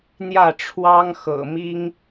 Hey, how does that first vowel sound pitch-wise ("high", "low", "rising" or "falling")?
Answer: falling